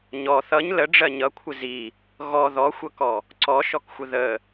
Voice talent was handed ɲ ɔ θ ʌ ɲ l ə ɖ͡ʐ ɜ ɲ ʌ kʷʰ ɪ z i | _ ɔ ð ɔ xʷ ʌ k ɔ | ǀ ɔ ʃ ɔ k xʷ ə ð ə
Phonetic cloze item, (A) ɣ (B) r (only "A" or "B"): A